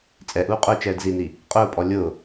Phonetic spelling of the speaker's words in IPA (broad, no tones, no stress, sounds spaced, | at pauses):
t͡sʼ ɛ ʔ uː qʼ ʊː t͡ʃ ɛː d z i n i | qʼ ʊː pʼ ɔ lʲ ʊː